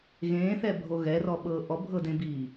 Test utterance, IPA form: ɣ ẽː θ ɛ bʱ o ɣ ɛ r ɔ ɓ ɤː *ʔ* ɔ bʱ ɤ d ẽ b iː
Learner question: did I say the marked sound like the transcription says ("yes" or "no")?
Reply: yes